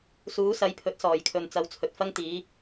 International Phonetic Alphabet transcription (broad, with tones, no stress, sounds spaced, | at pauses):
s uː˨˥ s ɐ˨˥ j pʰ ɵ˨˥ t̚ s ɔː˨˩ j kʰ ɵ˨ n t͡s ɐ˨˧ w t͡sʰ ɵ˨ t̚ f ɐ˥ ŋ t̪ iː˨˥